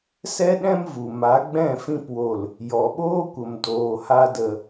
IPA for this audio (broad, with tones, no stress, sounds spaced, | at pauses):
s ɛ˦ ɗ ɛ̃˦ m v u˨ m a˨˦ ɡ͡b ɛ̃˦˨ f ĩ˧ p w o˨ l | j ɔ˨ ɓ oː˦ kʷ ə˨ m d oː˨ h a˧ d ə˨